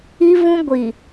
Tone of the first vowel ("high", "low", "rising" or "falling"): high